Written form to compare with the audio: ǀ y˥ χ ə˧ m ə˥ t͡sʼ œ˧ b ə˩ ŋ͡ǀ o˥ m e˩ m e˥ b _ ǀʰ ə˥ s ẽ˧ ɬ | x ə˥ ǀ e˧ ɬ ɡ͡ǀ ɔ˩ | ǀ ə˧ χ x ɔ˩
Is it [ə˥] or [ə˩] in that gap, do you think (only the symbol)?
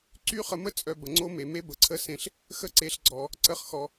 ə˩